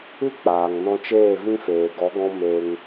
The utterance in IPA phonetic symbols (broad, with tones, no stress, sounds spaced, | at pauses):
ɨ˦ k͡p aː˨ ŋ n ɔ̃˧ t͡ʃ eː˦˨ v ĩ˧ f eː˨ ɡ ɔ˨˦ ɡ ɔ̃˧ m e˧ ŋ